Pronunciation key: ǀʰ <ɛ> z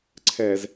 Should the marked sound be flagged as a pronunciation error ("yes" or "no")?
no